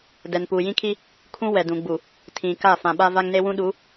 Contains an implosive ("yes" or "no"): yes